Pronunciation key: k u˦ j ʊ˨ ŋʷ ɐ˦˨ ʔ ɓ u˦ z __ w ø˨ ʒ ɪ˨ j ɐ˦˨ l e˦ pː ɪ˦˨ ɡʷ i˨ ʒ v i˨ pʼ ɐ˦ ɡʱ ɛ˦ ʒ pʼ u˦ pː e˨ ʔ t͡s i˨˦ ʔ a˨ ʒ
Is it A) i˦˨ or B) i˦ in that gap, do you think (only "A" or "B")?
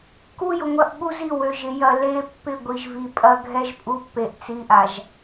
A